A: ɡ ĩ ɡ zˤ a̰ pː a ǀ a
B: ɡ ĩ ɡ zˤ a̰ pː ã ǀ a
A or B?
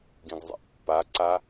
A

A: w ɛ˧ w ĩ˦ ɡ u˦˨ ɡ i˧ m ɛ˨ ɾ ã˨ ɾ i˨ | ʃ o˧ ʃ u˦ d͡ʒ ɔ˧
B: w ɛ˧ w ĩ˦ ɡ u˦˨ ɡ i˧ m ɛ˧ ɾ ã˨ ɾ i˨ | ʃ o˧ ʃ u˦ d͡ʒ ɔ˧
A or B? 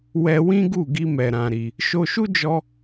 A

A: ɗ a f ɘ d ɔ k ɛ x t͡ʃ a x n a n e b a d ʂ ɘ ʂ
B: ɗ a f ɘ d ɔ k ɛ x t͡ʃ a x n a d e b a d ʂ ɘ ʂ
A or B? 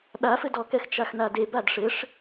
B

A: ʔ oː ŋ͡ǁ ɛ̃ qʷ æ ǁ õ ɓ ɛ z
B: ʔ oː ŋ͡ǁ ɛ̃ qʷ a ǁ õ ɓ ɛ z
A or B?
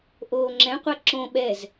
B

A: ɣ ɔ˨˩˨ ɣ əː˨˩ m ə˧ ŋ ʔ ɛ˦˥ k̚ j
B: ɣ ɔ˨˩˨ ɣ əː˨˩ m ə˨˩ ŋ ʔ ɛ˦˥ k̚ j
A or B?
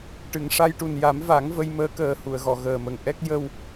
B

